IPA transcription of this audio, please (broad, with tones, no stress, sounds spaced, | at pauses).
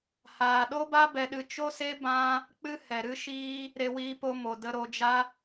h aː˨ ɗ o˦ b a˦ b ɛ˧ ɗ ɨ˧ t͡ʃ o˦ s e˦ b ã˦ | k͡p ɨ˦ h ɛ˨ ɾ ɨ˦ ʃ iː˦ | ɾ e˧ w iː˧ p o˧ m o˨ d ə˧ ɾ o˧ d͡ʒ a˦